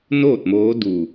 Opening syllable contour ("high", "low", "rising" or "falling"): falling